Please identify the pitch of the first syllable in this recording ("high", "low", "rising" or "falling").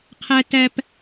high